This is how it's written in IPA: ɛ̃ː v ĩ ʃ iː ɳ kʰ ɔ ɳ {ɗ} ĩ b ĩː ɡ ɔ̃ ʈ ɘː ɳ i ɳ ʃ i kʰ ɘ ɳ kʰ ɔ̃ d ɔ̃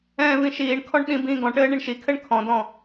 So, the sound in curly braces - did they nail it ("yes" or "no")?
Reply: yes